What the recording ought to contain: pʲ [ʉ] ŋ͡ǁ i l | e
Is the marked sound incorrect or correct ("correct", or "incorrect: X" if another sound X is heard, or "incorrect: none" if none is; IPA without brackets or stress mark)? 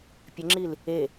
incorrect: ə